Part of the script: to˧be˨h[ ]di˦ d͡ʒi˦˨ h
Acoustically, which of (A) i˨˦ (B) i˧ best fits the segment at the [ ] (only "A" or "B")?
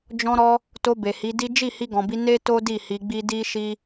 A